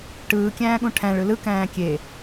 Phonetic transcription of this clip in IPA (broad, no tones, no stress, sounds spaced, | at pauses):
ʈ ɯː kʲ æ̃ː ɠ ũ ʈʰ æ̃ ɭ ɯ l ɯ k æ̃ː kʲ e